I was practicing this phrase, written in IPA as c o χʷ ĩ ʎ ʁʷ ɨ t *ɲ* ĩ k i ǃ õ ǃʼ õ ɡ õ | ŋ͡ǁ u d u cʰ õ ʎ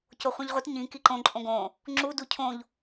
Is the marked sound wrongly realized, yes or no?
no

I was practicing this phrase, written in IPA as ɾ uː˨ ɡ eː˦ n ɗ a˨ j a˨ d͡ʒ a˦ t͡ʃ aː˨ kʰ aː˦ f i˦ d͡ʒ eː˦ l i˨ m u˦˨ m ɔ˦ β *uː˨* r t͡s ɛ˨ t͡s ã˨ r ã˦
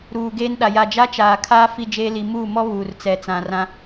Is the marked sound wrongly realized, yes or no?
no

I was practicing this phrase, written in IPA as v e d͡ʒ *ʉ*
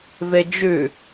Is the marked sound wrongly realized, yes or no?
no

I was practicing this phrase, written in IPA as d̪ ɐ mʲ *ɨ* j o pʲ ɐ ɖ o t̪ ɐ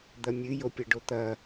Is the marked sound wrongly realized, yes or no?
no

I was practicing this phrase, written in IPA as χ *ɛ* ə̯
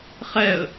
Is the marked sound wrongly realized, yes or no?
no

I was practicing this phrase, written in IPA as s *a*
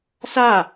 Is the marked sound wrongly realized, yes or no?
no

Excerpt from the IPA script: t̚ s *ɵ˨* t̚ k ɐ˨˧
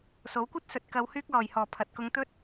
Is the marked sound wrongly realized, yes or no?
no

